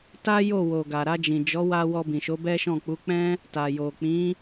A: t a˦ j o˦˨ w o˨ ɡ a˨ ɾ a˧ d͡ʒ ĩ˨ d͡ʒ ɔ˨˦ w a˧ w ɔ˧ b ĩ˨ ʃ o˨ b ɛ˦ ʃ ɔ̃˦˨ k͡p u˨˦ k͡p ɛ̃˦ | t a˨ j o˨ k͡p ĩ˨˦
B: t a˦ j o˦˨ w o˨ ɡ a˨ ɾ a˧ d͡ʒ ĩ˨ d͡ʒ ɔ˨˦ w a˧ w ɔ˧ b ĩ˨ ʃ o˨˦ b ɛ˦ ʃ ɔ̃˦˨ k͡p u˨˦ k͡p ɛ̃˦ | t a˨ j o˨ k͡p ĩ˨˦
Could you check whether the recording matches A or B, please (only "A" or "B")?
B